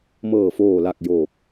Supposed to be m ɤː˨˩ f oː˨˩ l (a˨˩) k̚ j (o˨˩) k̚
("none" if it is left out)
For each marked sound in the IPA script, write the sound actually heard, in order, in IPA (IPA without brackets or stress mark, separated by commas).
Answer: a˨˩, oː˨˩